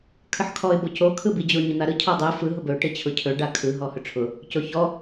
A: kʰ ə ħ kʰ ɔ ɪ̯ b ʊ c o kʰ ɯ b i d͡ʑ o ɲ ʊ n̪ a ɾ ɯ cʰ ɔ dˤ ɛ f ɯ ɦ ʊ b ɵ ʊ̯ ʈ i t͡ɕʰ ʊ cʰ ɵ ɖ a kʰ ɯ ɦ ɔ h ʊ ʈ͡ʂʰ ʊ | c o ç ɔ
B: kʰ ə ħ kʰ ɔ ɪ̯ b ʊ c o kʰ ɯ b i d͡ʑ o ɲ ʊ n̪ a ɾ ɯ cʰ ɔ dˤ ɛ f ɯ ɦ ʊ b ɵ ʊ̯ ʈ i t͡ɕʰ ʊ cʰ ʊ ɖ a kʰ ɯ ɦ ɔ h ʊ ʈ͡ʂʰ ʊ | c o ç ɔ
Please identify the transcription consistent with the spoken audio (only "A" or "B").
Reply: A